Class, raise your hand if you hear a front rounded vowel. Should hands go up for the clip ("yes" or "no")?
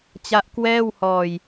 no